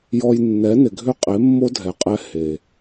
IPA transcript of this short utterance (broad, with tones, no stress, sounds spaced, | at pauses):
j ɔ˧ j nː ɛ˨˦ n ɪ˨ ɡʱ ʏ˦ qʼ e˨˦ mː o˦ dʱ ɛ˨ qʼ ɛ˧ h e˨